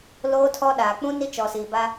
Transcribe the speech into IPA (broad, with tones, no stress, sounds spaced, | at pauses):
l oː˦ tʰ ɔ˦ ɗ aː˨ k͡p ũ˦ n i˦ t͡ʃ ɔ˨ s iː˨ b a˦